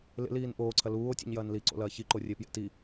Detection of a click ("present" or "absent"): present